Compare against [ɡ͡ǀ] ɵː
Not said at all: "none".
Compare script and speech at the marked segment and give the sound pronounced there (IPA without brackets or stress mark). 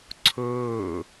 ǀʰ